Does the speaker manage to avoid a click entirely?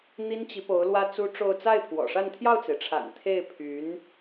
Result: yes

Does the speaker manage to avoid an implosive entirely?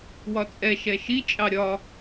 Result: yes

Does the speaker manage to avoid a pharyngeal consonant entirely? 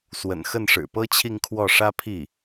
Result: yes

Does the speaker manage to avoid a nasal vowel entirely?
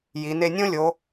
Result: no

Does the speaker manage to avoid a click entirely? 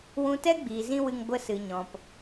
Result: yes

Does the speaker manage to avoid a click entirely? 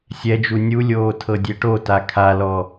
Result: yes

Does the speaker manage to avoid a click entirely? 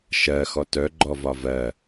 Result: no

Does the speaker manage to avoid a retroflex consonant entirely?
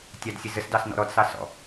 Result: yes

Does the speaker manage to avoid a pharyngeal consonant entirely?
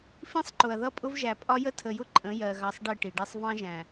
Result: yes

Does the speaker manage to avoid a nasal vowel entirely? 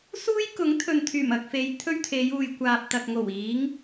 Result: yes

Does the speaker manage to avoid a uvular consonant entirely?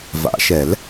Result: yes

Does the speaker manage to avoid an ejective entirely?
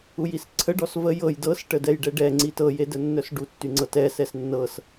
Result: yes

